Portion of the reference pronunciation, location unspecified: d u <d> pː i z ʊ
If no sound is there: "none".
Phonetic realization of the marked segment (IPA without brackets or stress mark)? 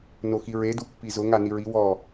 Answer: none